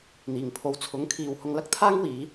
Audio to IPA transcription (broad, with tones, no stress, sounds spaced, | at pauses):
n̪ iː˨˩ ŋ pʰ o˨ w t͡sʰ ʊ˨˥ ŋ kʰ iː˨ w h ʊ˧ ŋ l ɐ˥ k̚ t̪ʰ aː˥ ŋ w iː˨˧